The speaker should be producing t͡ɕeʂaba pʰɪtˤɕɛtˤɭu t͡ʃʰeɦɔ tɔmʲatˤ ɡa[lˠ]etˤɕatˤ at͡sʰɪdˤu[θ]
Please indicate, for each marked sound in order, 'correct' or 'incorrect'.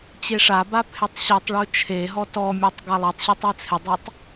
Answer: correct, incorrect: tˤ

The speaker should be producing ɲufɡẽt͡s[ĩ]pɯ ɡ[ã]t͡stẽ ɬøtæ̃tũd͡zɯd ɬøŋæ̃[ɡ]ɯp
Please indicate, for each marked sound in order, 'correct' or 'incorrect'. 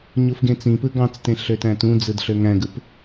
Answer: correct, incorrect: ɑ̃, correct

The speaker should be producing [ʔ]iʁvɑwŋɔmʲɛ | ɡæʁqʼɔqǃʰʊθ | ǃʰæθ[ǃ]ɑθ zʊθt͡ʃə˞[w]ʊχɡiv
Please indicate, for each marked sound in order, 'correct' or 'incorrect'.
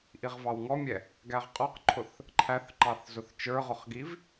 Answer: correct, correct, incorrect: ʁ

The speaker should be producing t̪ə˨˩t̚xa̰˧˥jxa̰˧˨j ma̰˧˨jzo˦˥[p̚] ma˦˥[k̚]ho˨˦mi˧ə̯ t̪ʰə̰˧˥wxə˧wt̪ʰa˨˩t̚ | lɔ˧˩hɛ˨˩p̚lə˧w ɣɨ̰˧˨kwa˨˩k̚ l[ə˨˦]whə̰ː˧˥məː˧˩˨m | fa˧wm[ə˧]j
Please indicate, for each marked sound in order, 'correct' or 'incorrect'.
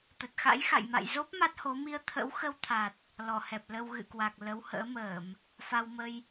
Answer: correct, incorrect: t̚, correct, correct

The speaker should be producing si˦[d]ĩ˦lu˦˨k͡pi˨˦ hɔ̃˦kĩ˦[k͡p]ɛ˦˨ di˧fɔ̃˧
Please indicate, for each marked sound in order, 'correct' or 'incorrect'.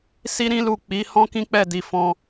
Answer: incorrect: ɾ, correct

